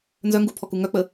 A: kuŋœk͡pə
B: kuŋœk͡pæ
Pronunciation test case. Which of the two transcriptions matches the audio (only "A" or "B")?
A